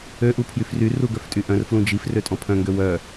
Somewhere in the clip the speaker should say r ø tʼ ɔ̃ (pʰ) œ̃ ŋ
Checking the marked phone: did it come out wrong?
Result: no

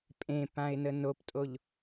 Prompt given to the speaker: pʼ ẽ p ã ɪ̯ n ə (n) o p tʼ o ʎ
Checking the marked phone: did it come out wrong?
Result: no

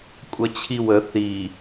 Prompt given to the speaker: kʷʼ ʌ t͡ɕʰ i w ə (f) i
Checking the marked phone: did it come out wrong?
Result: yes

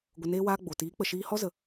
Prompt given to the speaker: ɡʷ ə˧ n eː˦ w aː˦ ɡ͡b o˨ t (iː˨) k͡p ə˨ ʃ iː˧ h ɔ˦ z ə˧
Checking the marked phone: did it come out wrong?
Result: yes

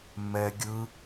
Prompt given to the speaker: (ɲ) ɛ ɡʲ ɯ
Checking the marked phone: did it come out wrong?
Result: yes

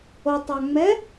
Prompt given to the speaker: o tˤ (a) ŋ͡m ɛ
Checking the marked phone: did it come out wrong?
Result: no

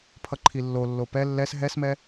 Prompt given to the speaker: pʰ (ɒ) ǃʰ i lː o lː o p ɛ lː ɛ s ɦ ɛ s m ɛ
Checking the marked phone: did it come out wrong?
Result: yes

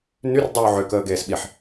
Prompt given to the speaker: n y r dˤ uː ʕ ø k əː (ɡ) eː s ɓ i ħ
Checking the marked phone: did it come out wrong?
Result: no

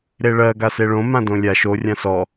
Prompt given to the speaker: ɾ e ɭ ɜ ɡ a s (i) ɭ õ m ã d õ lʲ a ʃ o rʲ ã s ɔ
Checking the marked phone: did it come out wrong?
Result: yes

